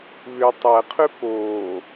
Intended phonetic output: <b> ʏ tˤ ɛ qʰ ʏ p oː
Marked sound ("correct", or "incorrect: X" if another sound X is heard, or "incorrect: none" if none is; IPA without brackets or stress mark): incorrect: β